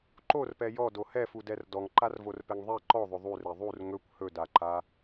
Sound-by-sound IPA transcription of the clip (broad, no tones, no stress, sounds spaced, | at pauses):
ǃ o r p ɛ j ɔ d o h ɛ f u d ɛ r d ɔ ŋ ǃ a r v o r p ɛ ŋ ðˤ ɛ ǃ ɔ ðˤ ɵ ðˤ u r ɛ ðˤ u r ŋ ɵ kʷ h ɵ d a ǃ a